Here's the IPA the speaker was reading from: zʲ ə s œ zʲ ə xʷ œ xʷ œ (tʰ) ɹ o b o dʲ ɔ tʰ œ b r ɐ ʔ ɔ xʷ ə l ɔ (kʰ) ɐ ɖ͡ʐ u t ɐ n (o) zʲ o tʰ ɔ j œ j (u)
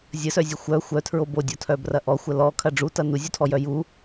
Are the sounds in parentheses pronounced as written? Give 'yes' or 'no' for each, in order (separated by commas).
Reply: yes, yes, no, yes